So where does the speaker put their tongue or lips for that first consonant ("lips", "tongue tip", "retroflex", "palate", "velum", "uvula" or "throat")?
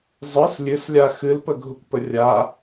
tongue tip